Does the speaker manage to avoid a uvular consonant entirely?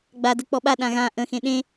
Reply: yes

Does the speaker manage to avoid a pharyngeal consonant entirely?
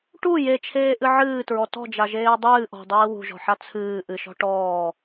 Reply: no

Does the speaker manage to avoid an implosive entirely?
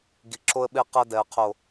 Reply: no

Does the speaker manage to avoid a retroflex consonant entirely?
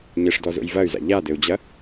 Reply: no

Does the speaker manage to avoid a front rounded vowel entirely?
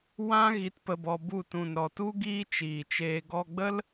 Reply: yes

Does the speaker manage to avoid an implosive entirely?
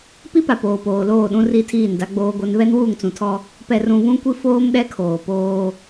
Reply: no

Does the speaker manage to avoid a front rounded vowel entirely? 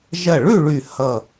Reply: no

